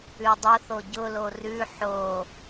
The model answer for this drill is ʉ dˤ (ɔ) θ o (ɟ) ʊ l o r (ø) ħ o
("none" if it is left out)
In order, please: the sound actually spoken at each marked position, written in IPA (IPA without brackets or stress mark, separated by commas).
ʊ, ɟ, ʉ